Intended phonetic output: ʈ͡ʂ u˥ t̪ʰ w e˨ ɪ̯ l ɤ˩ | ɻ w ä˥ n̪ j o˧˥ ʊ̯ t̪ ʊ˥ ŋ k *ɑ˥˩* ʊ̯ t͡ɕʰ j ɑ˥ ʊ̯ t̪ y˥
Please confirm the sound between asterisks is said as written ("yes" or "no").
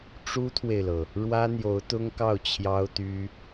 yes